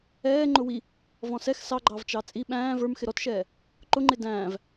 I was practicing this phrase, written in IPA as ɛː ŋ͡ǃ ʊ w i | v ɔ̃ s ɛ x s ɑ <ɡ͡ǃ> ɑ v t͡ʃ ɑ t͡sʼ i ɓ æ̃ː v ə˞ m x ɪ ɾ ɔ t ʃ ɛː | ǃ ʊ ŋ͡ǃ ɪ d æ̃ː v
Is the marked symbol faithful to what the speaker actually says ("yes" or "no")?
yes